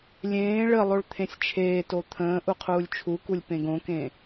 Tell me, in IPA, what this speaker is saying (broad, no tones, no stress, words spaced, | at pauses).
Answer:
lʲẽː ɭəlˠoɭ t̪ʰẽsʲt͡ʃʰeːto t̪ʰə̃ː ʔuqʰuːlʲt͡ʃʰukulʲ pẽɡõkẽ